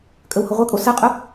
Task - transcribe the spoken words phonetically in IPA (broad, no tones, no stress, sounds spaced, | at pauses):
kʼ ə w h ʊ ʁʷ ɛ kʼ o s ə qʼ ʊ